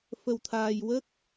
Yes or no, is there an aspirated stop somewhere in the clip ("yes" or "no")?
yes